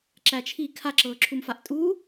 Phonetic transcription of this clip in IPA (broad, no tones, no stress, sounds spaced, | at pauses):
ǁ æ t͡ʃʰ i kʰ a ǁ ɤː ǁʰ u m f a ʔ tʼ uː